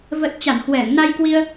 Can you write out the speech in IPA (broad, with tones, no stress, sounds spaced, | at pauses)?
v ə˨˩ t̚ t͡ɕ a˧˩ n h w ɛ˧˩ ŋ n a˧ j k w i˧ ə̯